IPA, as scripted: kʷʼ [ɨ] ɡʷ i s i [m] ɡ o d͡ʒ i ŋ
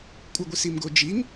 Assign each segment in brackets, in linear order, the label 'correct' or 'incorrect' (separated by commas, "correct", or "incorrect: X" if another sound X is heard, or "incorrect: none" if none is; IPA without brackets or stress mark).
correct, correct